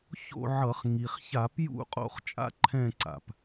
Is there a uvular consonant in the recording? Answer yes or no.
yes